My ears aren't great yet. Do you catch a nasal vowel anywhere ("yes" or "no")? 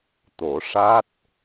no